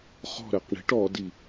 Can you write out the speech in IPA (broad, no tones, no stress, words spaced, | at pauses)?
χɔ̤ ɾɜqɳi̤ʈ ɔdi